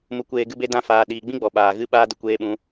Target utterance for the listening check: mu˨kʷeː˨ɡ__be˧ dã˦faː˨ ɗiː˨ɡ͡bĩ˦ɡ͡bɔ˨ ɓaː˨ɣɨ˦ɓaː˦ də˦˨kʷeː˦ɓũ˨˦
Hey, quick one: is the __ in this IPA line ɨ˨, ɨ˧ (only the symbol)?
ɨ˧